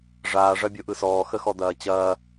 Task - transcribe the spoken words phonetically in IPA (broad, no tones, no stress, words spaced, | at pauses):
ʐaːʐɐbʲoʔɯ sɔːxəxɔd̪ɐː t͡ɕɐː